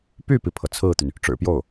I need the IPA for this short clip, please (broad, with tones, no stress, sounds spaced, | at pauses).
p y˥˩ p i˩ pʰ ɤ˩ t͡sʰ ɹ̩˥˩ t̪ y˩ n | ʈ͡ʂ ɻ̩˨˩ p j o˥˩ ʊ̯